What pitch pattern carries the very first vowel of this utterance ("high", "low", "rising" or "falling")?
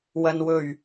low